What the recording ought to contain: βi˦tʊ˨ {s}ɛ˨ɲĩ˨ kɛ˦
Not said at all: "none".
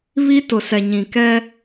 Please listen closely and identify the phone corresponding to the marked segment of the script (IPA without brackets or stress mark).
s